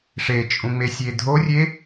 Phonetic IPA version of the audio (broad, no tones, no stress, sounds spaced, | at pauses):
ʂ e t͡ʃʼ ũ ŋ͡m e sʲ e dʱ o rʲ e